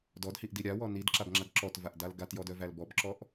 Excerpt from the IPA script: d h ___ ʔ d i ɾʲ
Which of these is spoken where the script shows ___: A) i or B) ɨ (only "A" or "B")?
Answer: A